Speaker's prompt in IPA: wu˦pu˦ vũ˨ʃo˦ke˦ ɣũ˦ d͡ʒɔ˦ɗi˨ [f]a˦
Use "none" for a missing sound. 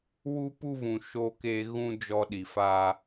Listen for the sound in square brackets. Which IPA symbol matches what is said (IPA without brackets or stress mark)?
f